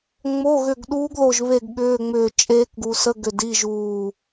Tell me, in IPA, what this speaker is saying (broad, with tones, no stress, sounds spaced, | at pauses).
ŋ͡m o˧˥˧ ɣ ʏ˦˨ ɡ ɗ uː˦˥ ɡ ð o˦˨ ʒ β e˦˨ ɡ ɠ ʏː˧˥˧ ŋ͡m ʏː˦˨ t͡ʃʼ eː˦˥ k ɡ u˨ s ə˧˥˧ ɡ ʏ˦˨ d i˧˥˧ ʒ uː˦˨